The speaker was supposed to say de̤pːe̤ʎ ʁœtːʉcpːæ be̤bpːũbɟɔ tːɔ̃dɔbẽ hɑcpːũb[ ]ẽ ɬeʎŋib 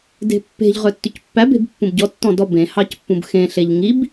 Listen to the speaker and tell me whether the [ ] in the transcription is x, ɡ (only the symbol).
x